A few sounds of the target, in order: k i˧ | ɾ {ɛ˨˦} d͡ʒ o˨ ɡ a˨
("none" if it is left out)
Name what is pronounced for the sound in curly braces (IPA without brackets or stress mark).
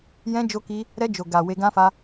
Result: ɛ˧